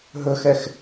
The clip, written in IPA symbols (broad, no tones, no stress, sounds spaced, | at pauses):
ɦ ɵ x ɛ x